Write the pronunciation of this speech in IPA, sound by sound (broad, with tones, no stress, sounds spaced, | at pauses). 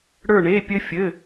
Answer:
ɽ ə˞˥˧ ɳ e˧˥˧ pʲ ɘ˥ fʲ ɘ˧˥˧